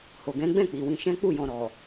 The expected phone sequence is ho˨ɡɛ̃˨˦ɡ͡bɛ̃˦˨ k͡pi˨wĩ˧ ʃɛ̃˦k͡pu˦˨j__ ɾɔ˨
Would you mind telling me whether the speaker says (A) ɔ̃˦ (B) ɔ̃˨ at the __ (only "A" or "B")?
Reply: B